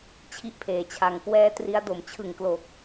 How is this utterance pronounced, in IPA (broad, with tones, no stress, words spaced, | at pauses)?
t͡ɕʰi˥˩ʔpʰeː˨˩t͡ɕʰa˧ŋ kwɛː˦˥tri˦˥a̯do˨˩m t͡ɕʰɯ˨˩ŋklo˨˩k̚